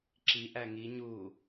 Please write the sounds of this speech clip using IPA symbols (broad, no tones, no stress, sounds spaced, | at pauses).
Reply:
ǁ i ʔ æ ŋ i ɲ u